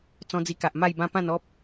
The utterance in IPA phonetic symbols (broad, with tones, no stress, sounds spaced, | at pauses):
t͡s ɔ̃˧ d͡z i˧ k a˨ ʔ m a˥˧ j b ã˦ p ã˥˧ n ɔ˦ p̚